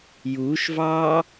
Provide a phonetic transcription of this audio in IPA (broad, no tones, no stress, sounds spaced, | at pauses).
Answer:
j uː ʃ v ɑː